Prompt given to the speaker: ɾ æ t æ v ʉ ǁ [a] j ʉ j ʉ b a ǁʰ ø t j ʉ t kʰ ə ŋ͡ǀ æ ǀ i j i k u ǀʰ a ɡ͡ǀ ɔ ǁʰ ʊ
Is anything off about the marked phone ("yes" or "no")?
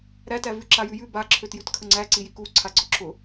no